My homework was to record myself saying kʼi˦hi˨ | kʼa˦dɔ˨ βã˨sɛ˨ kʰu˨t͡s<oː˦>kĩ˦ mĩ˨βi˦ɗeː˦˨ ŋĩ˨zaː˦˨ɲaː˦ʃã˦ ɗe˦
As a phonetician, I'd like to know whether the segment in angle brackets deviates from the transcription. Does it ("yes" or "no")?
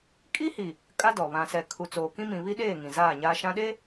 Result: yes